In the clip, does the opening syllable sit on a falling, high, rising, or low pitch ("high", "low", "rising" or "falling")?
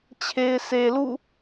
low